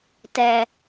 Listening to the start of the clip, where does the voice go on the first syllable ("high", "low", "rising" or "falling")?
high